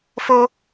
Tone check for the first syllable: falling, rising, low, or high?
high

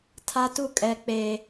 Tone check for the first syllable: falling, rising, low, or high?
high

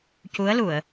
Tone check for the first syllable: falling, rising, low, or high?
rising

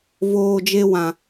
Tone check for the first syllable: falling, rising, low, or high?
low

